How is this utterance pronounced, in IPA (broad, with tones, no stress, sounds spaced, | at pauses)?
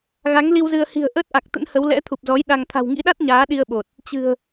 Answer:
ɣ a˨˦ ŋ l i˧ w z ɨ˧ ə̯ h i̤˨˩ ə̯ ʔ əː˦˥ t̚ ʔ a˨˩ k̚ t̪ ə̰˧˥ n h ə˨˦ w l ɛ̰˧˥ t̪ʰ u˨˩ p̚ z ɔ˨˦ j ɗ a˧ ŋ t̪ʰ a̤˨˩ w ŋ ḭ˧˥ ɗ a˦˥ t̚ ɲ aː˨˦ ɗ i˧ ə̯ ɓ o˨˩ t̚ | t͡ɕ ɨ̤˨˩ ə̯